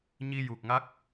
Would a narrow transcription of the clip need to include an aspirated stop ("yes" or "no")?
no